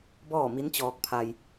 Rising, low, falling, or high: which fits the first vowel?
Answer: falling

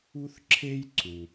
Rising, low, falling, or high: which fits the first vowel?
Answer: high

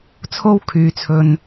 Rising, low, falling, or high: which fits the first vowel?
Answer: high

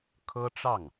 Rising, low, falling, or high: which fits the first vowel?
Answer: high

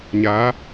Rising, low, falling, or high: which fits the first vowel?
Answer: rising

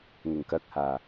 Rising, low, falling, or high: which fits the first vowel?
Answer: low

